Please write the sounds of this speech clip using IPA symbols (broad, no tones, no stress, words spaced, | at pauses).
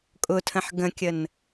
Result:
kʼʊtʰə̃ħ ɡə̃kʲən